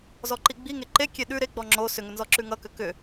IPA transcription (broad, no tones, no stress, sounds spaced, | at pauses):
z ɔ ǃ i ɡ͡b i ŋ e ǃ e kʲ e ɗ ʉ ɾ e ɡ͡b ɔ ŋ͡ǁ o s ʏ ŋ ʏ n z ɔ ǁ ʉ ŋ ʌ k ʏ k ʏ